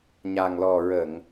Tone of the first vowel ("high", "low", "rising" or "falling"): low